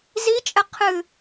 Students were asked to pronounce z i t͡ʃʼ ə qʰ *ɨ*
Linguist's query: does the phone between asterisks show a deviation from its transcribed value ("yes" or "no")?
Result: no